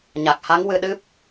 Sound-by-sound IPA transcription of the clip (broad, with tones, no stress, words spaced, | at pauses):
ɲa˨˩k̚ha˧˥ŋwɨ˧ɗɨ˦˥p̚